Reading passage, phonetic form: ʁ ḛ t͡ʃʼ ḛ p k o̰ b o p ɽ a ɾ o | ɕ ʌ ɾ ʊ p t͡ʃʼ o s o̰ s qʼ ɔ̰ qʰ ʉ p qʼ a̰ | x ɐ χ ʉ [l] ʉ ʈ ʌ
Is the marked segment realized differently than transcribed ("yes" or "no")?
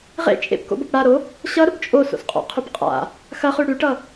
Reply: yes